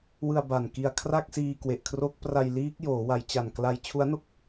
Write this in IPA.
wɯ˧a̯ba˨˩n ki˧a̯kʰra˥˩k̚siː˧ kwe˨˩ʔkʰro˦˥k̚pra˧j liː˦˥k̚ joː˩˦wa˩˦jt͡ɕa˨˩n kla˧j t͡ɕʰu˦˥a̯no˥˩k̚

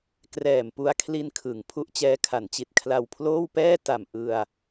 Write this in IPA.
krɛː˨˩mpu˧a̯kʰli˧nkʰɯ˩˦ŋ pʰu˦˥ʔt͡ɕɛː˦˥kʰa˩˦nt͡ɕi˨˩t̚ kʰla˧wpʰloː˥˩wpɛː˥˩ ta˨˩m ʔɯ˧a̯

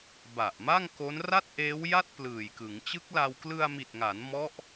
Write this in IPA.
ba˨˩ʔ ma˥˩ŋko˦˥n ra˥˩t̚ʔeː˦˥wja˥˩t̚ plɯː˨˩jkɯ˩˦ŋ t͡ɕɯ˦˥k̚la˧w klɯ˧a̯mi˨˩t̚ŋa˩˦n mɔ˦˥ʔ

